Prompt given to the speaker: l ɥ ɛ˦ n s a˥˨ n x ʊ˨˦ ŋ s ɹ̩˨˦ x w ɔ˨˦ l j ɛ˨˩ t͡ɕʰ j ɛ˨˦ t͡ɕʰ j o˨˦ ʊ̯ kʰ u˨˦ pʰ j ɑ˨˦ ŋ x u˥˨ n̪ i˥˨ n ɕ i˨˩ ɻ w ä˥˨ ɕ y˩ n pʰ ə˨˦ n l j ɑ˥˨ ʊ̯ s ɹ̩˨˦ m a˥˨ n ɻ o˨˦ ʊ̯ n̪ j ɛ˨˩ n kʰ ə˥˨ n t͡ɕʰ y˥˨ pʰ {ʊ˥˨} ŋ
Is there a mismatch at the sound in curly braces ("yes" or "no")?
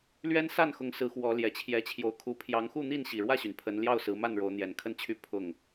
no